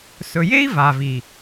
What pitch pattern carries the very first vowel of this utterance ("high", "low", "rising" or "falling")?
low